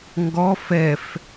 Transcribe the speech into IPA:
ŋ ɡ ɔ f ɛ f

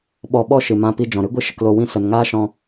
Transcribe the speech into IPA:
ɓ ɔ˧ ɓ ɔ˦ ʃ ɨ˨ m ã˧ p i˧ d͡ʒ ɔ̃˨ ɾ ɨ˦ ɡʷ ɨ˦ ʃ ə˧ k l o˧ w ĩ˦ s ə˨ n ŋ aː˦ ʃ ɔ̃˧

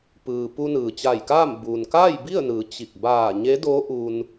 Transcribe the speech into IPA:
p ɯː˩ p u˧ n ɯː˩ t͡ɕ a˧˩ j k aː˥˨ m b uː˩ n k aː˥˨ j b i˥˨ ə̯ n ɯː˩˧ t͡ɕ i˧˩ k̚ b aː˧˩ ɲ e˧˥ d oː˧˥ ʔ u˧ n

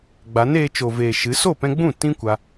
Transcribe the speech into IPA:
ɡ͡b a˨˦ n eː˧ t͡ʃ o˨ v eː˨ ʃ ɨ˨˦ s o˦˨ p ɛ̃˧ ɡ͡b ũ˦˨ t ĩ˦ kʷ a˧

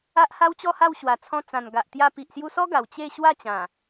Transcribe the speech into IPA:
a˦ ʔ h a˦ w t͡ɕ ɔ˥˧ h a˥˧ w ɕ w a˨˩ t͡sʰ ɔ̃˧ t͡s ã˨˩ n ɡ a˨ ʔ t̪ j a˧ p i˨ ʔ s j u˧ s ɔ˦ ɡ a˨˩ w t͡ɕ e˥˧ ɕ w a˥˧ t͡ɕ ã˨˩

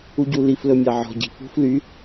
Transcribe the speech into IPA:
u ɟ u l i f l ɵ mʲ ɑ ʕ ɔ̤ ɟ i̤ f ṳ f l y

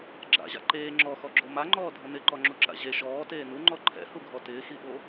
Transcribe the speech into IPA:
ɡ͡ǁ a̰ ʑ a̰ ǃ eː ŋ͡ǁ ɔ x ɔ ɡ͡ǁ o m a ŋ͡ǃ ɔː dʱ ʊ n ɪ ǃ ɔ ŋ͡ǁ u ǁ a̰ ʑ e ʃ ɔː t eː n u ŋ͡ǃ ɔ ǃʰ ɛ̰ h u ɡʱ ɔ t ɪː x i ɓ o

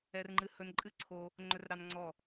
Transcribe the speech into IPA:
ɛ˧ r ŋ͡ǃ ɨ˧˩ h ɵ˧ n ǃʼ ɨ˥˧ ǀʰ o˧ | ŋ͡ǃ ɵ˧ r ɾ ɑ˧ n ŋ͡ǀ ɔ˧˩

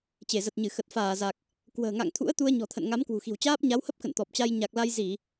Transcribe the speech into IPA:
t͡ɕ e˧˩ z ə˨˩ t̚ ɲ ɨ˧˩ x ə˨˩ t̚ f aː˧˩ z a˨˩ k̚ | k w ə̤ː˨˩ ŋ a̰˧˨ ŋ t̪ʰ ṵ˧˥ ə̯ t̪ u˧ ə̯ ɲ ɔ̤˨˩ t̪ʰ ə̰˧˨ n ŋ a˨˦ m k w ṳ˨˩ x i̤˨˩ w t͡ɕ aː˦˥ p̚ ɲ a˨˦ w h ə˦˥ p̚ k ə̰˧˨ n t̪ ɔ˨˩ p̚ t͡ɕ a˧ j ɲ a˨˩ k̚ l a˧ j z i˧˩˨

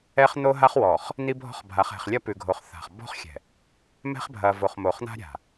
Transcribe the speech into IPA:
ɛ˦ χ n̪ o˦ ɦ a˦ χ w ɔ˨ χ | n̪ i˦ bʱ ɔ̤˦ χ bʱ a˨˦ χ ɛ̤˨ χ lʲ ɐ˦ p ʉ˨ ɡʱ o˨ χ θ a̤˨ χ b ɔ̤˦ χ xʲ ɛ̤˨ | m ɛ̤˦ χ bʱ ɐ˨ v o˨ χ m o˨ χ n̪ a̤˦ ɾʲ a̤˨

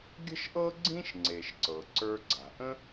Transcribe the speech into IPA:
ɡʲ ə̤˥ ʃ ʔ ɤ˥ ɡ͡ǀ ĩ˥ ʃ ŋ͡ǀ e˩ ʃ ǀ ɤ˩ ǀ ə˞˧ ɡ͡ǀ a̤˩ ʔ ə̃˥

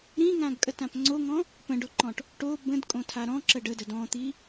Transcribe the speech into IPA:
ɾ ĩ ŋ ã ɡ kʼ ə t ã p ŋ͡ǀ o ŋ ɔ̃ | p ə̃ ɖ o ǃ ɔ̃ ʈ | ʈ o b ə̃ d kʼ õ tʰ a ɾ ɔ̃ ǁ ə ɖ ə d ə d ɔ̃ t̪ i

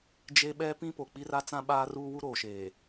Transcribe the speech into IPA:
d͡ʒ e˦ ɓ ɛ˦ p ĩ˦ p o˨ k͡p i˦ r a˦ t͡s ã˦ ɓ aː˦ r uː˦ w u˦ ɾ o˨ ʃ eː˨

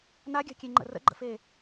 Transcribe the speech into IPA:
n a ɡʲ a̤ kʲ e ŋ͡ǃ ə̰ r ə̰ ɡ͡ǃ ə̰ f e

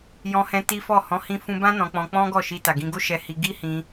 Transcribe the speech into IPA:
j ɔ̃˧ h ɛ̃˧ t i˦ f ɔ˦˨ h ɔ̃˨˦ h ĩ˧ f ũ˧ b ã˦ n ɔ̃˧ k͡p ɔ̃˧ k͡p ɔ̃˦ ɡ ɔ˦˨ ʃ i˧ t a˨ ɡ ĩ˧ ɡ o˦ ʃ ɛ˧ h i˧ ɡ i˦ h ĩ˧

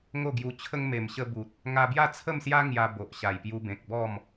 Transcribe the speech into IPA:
ŋ o˥˧ ɡ j u˧ t͡ɕʰ ə˧ ŋ m e˨˩ m ɕ ə˧ b u˨ t̚ | ŋ a˧ b j a˥˧ t͡sʰ ə˥˧ m s j a˦ ŋ j a˧ b o˨ ʔ ɕ a˨˩ j p j u˧ b ẽ˨ k̚ b ɔ˥˧ m

